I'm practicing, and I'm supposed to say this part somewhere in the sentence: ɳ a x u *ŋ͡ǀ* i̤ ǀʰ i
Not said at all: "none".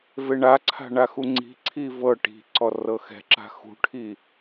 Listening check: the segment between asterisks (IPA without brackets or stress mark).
ŋ͡ǀ